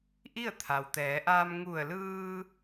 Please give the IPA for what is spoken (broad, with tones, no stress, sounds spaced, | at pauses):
ʔ i˥˨ ə̯ t̪ʰ a˩ w t̪ ɛː˩˧ ʔ aː˧ m ŋ u˧˩ ə̯ l ɯː˧